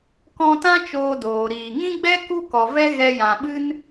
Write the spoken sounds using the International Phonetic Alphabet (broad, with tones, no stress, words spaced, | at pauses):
kɔ̃˧tã˦ t͡ʃoː˧doː˨ɾiː˨ ŋĩ˦ɡ͡bɛ˦ ku˦kɔ˨vɛ˦ ɣɛ˧jã˨ɓɨ˦n